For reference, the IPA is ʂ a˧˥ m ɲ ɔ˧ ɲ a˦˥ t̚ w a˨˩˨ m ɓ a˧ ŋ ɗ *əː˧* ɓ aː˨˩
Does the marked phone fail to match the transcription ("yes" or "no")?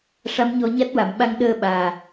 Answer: no